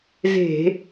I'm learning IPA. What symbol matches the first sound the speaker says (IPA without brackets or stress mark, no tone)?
z